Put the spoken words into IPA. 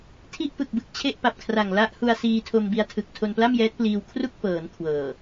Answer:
tʰ i˥˩ ʔ p ɯ˨˩ k̚ b ɯ˨˩ k̚ t͡ɕʰ e˥˩ ʔ p a˨˩ p̚ kʰ r a˨˩ ŋ l a˦˥ ʔ h u˧ a̯ s iː˧ tʰ o˧ m b i˧ a̯ tʰ ɯ˨˩ k̚ tʰ o˧ n p l a˥˩ m j ɛː˦˥ t̚ p l iː˧ w kʰ r u˥˩ k̚ p ɤː˩˦ n kʰ w ɤː˨˩

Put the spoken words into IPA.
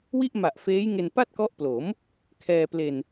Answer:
w i˥˩ ʔ m a˨˩ ʔ f eː˦˥ j ŋ e˧ n p a˥˩ t̚ k ɔ˦˥ ʔ p l o˩˦ m | kʰ ɛː˧ p l e˧ n

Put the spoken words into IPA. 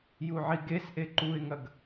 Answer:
j u ʕ i ɡ e s ʔ e ǃ u ɪ̯ ŋ ɐ ɡ

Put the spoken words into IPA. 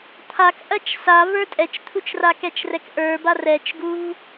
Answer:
t̪ʰ a k ʔ ɐ t͡ʃ s a v ə˞ tʼ ɛ t͡ʃ t̪ʰ u t͡ʃ r a k ɛ t͡ʃ r ɛ k ʔ ə˞ b a r ɛ t͡ʃ ɡ u v

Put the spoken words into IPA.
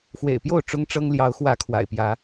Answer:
x w ḛ˨˩ ɪ̯ p j o˥˨ ʊ̯ ʈ͡ʂ ʊ˦ ŋ ʈ͡ʂ ɤ˦ ŋ l j ɑ˨˦ ʊ̯ x w ä˨˦ kʰ w a̰˨˩ ɪ̯ p j ä˨˦

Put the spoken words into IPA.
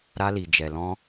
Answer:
ɾ a˧ l i˨ d͡ʒ ɛ˨ l ɔ̃˧

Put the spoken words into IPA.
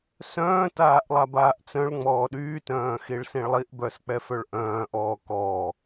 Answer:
s œ̃ː t aː ʔ lˠ a b aː ʔ t͡s œ̃ ɭ ŋ͡m ɔː ɗ yː t œ̃ː x i ɭ s ĩ ɭ lˠ i ʔ b œ s k͡p ɛ f œ ɭ ʔ œ̃ː ʔ ɔː k ɔː

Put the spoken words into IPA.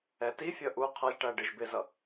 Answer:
ɛ t i fʲ ʌ ʔ u qʰ ʌ ʒ ʈ æ ɖ ɪ ʒ b ɪ z ʌ

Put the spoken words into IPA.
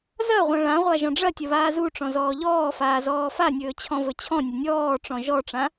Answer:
z ɐ ʁʷ ã ɭ ã ʁʷ a ʒ ɔ̃ ɖ͡ʐ ɐ tʲ ɐ β aː z u ʈ͡ʂ ɔ̃ z ɔː ʎ ɔː f aː z ɔː f a nʲ ɵː t͡ɕʰ ɔ̃ v ɵ t͡ɕʰ ɔ̃ nʲ ɐ nʲ ɔː ʈ͡ʂ ɔ̃ ʒ ɔ ʈ͡ʂ ã

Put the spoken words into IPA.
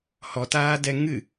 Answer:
h ɔ t aː d ɛ ŋ ɨ

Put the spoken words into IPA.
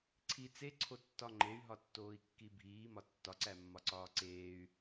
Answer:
ǀʰ i t͡s e ǀʰ o tː ɒ ŋ͡ǃ e y̯ ɦ ɒ tː oː i̯ kː i bʱ iː m ɒ tː ɒ ǀ æ mː ɒ ǀ ɒː ǀ eː y̯

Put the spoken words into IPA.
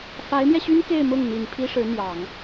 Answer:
f a˧˥ ɪ̯ m j ɛ˧ ɕ y˥ n k e˥˧ ɪ̯ m ʊ˥˩ ŋ n̪ i˨˩ n pʰ i˥ ʂ ɻ̩˧˥ n̪ j ɑ˨˩˦ ŋ

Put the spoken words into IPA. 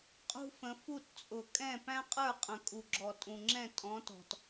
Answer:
qʼ ṳ˥ f ə̃˨˥ f u˥˨ t t͡sʼ ʊ˨ kʼ ɛ̃˥˨ p æ̃˥ qʼ ə˞˥˨ qʼ ə̃˨ kʼ u˨ ɡ͡ǁ ɔ˨ tʼ ũ˨ ŋ͡ǁ ɛ̃˥˨ tʼ ɔ̃˨˥ t ɔ̤˨ t

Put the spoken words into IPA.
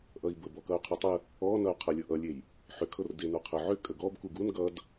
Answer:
ʔ ʌ i̯ b ə b ɔ k ʌ y̯ qʰ ʏ tˤ ə | ɔ n ʌ y̯ qʰ ɤ lʲ ɤ ʔ ʌ lʲ e j | ħ ʏ kʰ ɤ r d e n u qʰ ə ʕ ʏ kʼ ə ɡ ɔ b k u ɡ u n ɡ ʌ d

